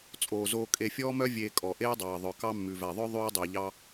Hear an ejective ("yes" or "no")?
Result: yes